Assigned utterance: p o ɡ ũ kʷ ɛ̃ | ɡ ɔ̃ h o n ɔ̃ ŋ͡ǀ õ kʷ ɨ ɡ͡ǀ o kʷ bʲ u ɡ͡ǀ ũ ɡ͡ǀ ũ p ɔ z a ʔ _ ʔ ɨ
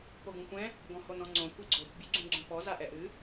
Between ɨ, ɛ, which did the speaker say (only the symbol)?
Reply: ɛ